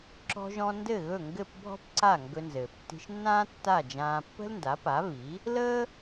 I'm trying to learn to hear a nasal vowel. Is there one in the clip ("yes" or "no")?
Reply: yes